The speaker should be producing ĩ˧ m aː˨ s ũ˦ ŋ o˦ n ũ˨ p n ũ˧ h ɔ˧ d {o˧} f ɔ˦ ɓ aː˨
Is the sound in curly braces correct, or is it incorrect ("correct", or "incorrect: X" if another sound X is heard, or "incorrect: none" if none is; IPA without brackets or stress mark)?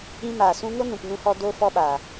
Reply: correct